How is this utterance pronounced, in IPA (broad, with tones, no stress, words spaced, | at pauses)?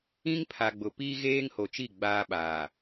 ĩ˦ŋ pʰa˨ɡ͡bʊ˨piː˦ ɣeː˦ŋho˨t͡ʃi˦˨ ɡ͡baː˦ɓaː˨